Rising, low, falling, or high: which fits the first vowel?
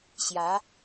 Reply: rising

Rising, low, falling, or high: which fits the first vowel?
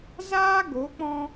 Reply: high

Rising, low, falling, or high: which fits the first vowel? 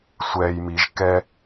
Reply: high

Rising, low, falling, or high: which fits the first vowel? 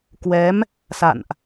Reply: rising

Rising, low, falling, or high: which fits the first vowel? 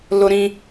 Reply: high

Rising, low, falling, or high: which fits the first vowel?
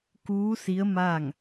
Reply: rising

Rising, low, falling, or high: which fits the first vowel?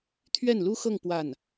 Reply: falling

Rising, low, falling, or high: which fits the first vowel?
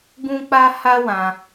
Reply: high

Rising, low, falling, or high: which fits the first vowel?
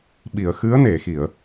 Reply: low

